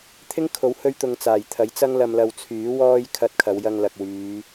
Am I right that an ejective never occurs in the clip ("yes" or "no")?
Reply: yes